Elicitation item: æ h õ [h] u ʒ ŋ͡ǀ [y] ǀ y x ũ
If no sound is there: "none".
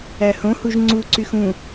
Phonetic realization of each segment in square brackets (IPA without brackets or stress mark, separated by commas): h, u